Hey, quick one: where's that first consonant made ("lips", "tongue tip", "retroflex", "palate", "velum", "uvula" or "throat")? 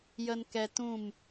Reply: palate